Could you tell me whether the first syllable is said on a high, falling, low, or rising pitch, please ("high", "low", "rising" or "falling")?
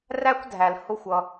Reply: high